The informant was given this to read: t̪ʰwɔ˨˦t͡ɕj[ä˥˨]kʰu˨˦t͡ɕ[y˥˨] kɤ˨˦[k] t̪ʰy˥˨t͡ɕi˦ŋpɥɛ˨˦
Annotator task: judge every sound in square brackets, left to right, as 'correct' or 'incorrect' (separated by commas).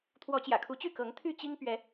incorrect, correct, incorrect